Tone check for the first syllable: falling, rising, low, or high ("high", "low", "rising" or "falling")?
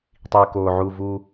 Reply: low